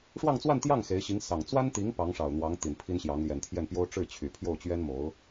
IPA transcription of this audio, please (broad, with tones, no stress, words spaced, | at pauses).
ʂwɑ˥˧ŋt͡swa˥˧nt̪jɑ˥˩ŋ xe˧˥ɪ̯ɕi˧˥ŋ sɑ˨˩ŋ t͡swa˥nt̪i˧˥ŋ pɑ˧˥ŋʂɑ˨˩ʊ̯n̪wɑ˧˥ŋ t̪i˨˩npʰi˥nɕjɑ˧˥ŋ ljɛ˨˩nt̪ʰjɛ˥˩npjo˥ʊ̯ ʈ͡ʂɻ̩˥˩t͡ɕʰy˨˩pʰjo˥˩ʊ̯t͡ɕɥɛ˥n mo˧˥ʊ̯